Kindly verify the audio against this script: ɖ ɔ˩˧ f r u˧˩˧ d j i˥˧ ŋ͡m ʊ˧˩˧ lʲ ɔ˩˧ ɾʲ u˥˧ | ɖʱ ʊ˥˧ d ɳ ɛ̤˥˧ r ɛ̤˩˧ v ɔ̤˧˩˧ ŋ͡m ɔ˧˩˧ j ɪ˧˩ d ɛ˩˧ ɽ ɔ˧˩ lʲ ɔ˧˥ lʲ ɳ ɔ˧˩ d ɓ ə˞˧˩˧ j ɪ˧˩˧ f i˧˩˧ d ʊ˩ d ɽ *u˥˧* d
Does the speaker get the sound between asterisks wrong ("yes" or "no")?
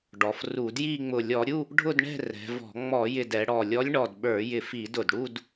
no